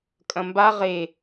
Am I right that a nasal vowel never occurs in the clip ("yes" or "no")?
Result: no